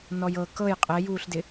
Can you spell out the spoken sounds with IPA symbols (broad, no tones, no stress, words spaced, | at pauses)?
nɔjɤ kɤj qʼɛjuːɬdɪ